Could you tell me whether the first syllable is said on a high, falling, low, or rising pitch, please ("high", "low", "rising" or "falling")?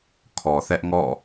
low